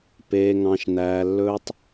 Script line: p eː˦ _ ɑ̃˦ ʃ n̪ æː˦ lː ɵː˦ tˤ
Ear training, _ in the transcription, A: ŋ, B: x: A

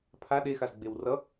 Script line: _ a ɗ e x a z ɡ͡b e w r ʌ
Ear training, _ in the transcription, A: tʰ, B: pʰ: B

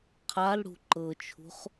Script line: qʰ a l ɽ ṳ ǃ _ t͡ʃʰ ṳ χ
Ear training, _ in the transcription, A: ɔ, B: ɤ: B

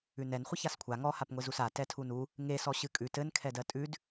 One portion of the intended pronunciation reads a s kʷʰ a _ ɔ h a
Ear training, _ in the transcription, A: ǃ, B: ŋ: B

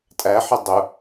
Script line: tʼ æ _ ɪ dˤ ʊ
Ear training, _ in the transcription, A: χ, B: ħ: B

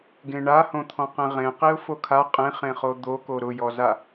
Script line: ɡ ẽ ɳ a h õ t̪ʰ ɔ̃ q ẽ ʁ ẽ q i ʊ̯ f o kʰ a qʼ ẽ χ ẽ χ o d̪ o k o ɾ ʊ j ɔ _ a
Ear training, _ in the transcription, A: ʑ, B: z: B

